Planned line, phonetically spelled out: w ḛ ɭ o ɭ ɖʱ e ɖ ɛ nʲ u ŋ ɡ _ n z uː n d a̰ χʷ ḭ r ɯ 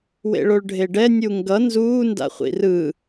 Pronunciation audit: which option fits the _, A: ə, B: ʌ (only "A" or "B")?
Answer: B